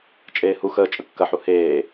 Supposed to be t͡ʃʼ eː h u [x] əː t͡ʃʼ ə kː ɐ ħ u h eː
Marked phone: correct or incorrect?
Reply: correct